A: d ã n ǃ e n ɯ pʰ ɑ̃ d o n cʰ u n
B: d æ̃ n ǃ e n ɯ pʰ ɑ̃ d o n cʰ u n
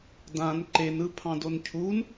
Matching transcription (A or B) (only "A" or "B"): A